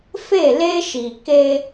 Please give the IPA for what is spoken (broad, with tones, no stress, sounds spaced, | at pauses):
f e˦˨ l e˦ ʃ i˨ k e˦